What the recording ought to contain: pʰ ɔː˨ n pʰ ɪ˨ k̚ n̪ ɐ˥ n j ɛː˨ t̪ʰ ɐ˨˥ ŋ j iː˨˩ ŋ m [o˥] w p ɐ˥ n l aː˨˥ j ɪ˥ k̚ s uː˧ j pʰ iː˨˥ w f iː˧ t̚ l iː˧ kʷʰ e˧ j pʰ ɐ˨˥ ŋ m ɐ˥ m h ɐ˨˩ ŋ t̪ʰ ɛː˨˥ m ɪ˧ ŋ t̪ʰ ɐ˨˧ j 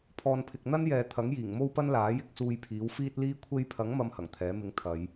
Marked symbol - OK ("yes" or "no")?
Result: yes